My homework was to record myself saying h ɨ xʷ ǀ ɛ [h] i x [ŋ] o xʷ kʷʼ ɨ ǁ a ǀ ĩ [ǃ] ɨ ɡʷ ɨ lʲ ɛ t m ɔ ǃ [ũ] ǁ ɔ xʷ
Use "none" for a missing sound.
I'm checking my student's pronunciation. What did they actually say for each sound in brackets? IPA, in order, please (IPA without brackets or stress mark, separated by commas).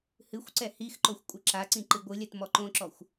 h, ǃ, ǃ, õ